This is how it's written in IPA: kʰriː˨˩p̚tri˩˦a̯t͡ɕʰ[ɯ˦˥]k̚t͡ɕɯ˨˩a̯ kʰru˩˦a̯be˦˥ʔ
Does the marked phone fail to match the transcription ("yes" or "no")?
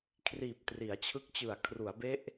no